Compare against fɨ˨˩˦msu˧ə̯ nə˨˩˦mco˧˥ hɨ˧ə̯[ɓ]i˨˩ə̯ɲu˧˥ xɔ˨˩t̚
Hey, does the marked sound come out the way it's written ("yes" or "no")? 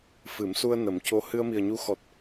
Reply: no